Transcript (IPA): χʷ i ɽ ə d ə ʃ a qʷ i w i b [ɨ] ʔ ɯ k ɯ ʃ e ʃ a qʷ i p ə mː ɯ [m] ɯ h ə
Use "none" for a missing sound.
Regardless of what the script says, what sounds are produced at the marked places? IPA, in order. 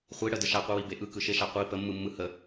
e, mː

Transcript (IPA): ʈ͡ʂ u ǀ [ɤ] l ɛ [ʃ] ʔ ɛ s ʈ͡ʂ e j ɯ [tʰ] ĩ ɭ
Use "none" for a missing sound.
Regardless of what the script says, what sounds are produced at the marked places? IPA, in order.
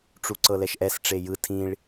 ɤ, ʃ, tʰ

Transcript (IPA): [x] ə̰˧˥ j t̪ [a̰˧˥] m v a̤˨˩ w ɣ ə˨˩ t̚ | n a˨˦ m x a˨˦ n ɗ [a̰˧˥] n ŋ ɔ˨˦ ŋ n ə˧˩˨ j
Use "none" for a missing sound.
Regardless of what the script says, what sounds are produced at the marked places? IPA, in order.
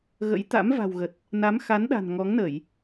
ɣ, a̰˧˥, a̤˨˩

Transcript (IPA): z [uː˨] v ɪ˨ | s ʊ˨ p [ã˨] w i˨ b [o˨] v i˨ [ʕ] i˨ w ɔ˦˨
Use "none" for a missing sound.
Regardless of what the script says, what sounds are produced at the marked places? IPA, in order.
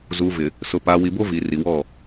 uː˨, a˨, o˦, r

